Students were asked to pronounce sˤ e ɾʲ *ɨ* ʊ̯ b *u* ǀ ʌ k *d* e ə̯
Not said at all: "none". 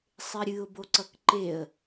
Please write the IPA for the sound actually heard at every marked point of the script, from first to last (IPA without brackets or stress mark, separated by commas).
ɨ, o, ǃ